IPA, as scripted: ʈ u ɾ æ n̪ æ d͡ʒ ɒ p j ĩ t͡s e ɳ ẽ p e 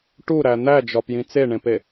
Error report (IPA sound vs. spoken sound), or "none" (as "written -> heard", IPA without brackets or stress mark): none